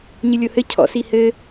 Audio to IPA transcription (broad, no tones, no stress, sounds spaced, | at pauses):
ɲ ɨ lʲ o h ɘ cʰ ɔ̰ s i h ɘ